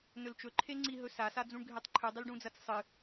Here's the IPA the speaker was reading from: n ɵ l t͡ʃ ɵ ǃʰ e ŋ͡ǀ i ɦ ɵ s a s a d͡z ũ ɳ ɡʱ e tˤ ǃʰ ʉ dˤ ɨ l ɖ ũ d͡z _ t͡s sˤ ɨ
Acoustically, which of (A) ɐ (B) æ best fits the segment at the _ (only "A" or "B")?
A